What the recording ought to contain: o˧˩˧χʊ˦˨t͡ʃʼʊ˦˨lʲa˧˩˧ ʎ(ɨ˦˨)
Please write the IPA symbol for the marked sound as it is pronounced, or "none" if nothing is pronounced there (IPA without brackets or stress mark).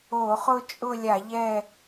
ɛ˦˨